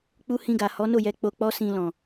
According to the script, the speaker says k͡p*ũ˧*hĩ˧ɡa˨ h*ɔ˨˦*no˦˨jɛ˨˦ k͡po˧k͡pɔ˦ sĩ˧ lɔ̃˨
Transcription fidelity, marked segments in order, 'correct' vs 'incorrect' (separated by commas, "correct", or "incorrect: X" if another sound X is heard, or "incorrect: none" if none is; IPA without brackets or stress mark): incorrect: u˧, correct